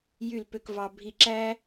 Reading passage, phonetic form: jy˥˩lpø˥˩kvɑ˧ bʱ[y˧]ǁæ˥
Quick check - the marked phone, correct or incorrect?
incorrect